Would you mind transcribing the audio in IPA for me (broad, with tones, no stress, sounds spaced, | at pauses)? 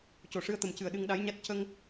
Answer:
c o˨˩˨ ʂ ɨ˧ ə̯ t̪ ə˨˩ m c ɨ˨˩ ə̯ ɗ ɨ˧ ŋ ɗ a˧˥ j ɲ a˦˥ t̚ c ə˧ ŋ